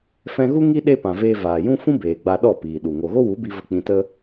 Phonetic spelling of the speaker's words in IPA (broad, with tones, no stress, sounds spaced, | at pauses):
f ɛ̃˧ ɣ u˦ ŋ i˦ ɗ e˦ p ã˨ v eː˧ v aː˨ j ũ˦ f ũ˦ b eː˨ ɡ͡b a˧ ɗ ɔ˦˨ p iː˨ ɗ u˨ ŋ o˨ ɣ o˦ w u˨˦ b i˧ v ə˧ k͡p ĩ˧ t ə˦